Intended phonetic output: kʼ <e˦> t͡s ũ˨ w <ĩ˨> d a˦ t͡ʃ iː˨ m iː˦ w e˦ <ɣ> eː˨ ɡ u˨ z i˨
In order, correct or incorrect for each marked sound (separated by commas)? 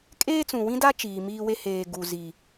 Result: incorrect, incorrect, incorrect